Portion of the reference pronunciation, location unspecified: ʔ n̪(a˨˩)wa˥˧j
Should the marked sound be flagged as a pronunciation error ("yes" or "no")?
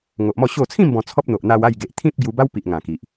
yes